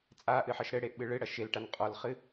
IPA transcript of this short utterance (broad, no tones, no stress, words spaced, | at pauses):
t͡sʼaʔɨħɐʃ ɾɘɽeʔɓɨ ɭɨɽɐ ʃelʈan qʼɔlχɨ